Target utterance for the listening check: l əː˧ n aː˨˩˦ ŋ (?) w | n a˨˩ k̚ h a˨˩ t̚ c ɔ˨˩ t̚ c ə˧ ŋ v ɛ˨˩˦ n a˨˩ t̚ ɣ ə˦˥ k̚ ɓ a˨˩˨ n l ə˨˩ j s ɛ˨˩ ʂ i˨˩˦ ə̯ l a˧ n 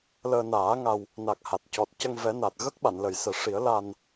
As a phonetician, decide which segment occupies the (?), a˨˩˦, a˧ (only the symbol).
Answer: a˧